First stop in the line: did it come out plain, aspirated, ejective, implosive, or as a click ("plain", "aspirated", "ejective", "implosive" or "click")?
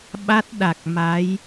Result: implosive